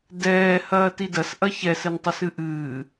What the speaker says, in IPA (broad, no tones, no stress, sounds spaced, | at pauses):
d ɛː h ɐː t i d ɐ s ʔ ɐ ç ɛ s ɘ n tˤ ɨ s ɨ ʔ ɨː